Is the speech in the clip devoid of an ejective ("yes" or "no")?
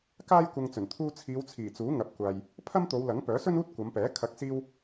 yes